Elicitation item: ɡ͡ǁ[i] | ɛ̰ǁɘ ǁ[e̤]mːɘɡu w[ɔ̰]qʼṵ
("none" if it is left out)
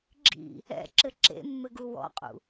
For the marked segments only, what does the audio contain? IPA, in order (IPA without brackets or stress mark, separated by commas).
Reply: ḭ, ḛ, ɔ̰